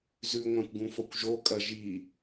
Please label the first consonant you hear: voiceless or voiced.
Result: voiced